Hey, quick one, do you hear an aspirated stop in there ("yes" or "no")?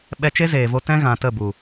no